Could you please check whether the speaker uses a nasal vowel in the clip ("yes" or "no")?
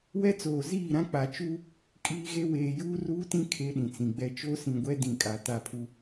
yes